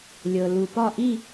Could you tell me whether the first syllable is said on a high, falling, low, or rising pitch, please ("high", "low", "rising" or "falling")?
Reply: low